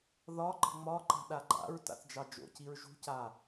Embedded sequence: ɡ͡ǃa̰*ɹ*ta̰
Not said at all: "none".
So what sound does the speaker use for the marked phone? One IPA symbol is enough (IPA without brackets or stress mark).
ɹ